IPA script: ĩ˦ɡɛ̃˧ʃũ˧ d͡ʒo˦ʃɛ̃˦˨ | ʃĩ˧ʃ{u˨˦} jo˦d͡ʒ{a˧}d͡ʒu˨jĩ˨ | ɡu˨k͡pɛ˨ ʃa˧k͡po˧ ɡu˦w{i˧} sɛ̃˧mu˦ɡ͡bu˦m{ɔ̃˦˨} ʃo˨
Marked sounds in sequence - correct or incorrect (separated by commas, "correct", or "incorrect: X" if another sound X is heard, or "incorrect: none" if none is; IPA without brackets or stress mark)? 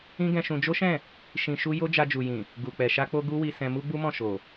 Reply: incorrect: u˦, correct, correct, correct